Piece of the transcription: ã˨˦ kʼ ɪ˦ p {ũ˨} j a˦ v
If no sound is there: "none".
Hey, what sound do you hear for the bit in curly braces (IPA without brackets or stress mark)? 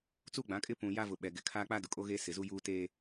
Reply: ũ˨